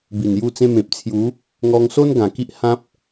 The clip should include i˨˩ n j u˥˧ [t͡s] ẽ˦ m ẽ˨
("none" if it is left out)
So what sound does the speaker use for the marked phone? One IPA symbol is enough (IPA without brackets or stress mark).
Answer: t͡s